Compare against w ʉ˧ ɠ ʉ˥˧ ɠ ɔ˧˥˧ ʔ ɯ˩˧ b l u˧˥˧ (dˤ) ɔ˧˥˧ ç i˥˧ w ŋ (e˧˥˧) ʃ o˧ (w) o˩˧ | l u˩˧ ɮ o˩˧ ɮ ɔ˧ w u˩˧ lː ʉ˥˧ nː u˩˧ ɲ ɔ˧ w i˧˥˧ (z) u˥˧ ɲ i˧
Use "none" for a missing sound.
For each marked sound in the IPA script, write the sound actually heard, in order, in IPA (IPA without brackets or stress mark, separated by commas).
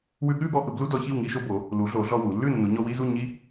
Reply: d, i˧˥˧, b, z